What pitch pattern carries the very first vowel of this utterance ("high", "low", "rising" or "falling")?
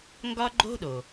high